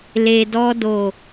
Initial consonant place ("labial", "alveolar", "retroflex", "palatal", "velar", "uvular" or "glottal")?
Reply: alveolar